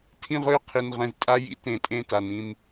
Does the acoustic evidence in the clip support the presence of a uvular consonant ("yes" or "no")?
yes